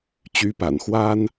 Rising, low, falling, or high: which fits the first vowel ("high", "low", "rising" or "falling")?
rising